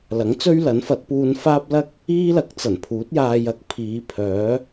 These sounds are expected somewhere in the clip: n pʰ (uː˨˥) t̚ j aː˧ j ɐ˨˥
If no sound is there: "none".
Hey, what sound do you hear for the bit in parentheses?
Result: uː˨˥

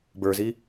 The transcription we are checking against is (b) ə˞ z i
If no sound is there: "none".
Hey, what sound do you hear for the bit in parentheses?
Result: b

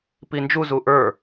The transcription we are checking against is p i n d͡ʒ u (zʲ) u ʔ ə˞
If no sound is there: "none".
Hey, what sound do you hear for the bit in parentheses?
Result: z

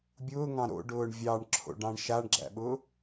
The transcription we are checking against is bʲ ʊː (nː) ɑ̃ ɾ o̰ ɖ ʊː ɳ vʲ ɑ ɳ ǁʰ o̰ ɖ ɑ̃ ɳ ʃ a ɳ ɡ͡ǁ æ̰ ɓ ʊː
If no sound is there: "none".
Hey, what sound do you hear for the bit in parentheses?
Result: ŋ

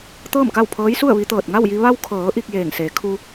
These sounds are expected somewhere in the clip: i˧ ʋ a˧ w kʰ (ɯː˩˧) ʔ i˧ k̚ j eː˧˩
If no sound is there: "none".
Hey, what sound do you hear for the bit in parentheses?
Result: ɤː˩˧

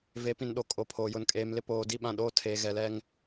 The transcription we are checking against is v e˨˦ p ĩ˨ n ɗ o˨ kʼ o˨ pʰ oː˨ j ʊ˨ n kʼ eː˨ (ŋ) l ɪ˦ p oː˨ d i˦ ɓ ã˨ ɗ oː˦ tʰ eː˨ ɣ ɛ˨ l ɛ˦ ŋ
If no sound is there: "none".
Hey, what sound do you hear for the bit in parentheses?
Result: m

